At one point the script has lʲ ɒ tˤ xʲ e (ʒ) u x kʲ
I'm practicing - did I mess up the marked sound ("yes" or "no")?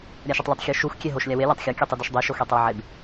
yes